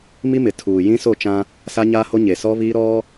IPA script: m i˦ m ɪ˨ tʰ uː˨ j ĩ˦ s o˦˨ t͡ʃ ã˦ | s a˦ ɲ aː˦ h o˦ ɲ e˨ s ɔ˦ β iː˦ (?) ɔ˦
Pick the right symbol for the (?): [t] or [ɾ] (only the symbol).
ɾ